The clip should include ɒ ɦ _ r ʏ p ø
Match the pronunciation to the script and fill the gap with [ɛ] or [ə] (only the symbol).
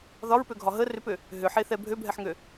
ə